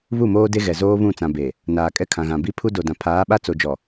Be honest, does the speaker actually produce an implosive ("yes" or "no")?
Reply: yes